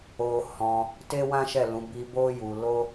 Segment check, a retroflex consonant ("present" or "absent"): absent